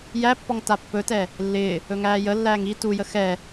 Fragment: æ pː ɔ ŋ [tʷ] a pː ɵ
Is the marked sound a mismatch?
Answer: yes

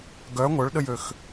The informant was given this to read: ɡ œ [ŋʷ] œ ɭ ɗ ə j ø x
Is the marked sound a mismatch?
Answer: no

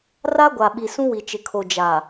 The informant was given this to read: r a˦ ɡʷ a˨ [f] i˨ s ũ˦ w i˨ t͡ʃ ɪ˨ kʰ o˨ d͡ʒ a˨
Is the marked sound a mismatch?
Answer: yes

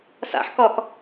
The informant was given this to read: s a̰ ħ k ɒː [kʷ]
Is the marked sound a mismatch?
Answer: yes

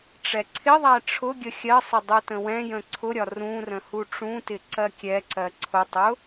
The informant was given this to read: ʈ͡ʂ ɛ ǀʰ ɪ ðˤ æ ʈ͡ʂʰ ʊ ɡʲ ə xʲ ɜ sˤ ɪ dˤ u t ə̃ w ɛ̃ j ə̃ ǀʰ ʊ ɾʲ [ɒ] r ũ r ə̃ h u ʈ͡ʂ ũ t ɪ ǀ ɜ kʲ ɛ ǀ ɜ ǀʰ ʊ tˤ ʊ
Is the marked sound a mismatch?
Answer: no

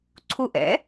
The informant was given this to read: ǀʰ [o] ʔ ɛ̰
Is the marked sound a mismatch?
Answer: yes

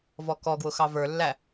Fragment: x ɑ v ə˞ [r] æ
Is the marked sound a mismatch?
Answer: yes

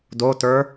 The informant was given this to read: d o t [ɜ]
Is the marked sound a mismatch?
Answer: yes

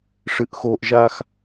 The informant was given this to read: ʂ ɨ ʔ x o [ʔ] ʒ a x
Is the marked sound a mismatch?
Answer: no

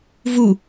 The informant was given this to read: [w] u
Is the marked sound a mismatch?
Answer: yes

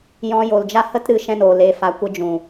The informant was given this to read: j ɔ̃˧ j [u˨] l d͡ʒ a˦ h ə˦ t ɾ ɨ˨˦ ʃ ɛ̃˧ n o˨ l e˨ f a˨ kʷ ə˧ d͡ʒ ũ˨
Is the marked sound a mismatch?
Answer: yes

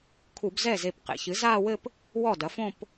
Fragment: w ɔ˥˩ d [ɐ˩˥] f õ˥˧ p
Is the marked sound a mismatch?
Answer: no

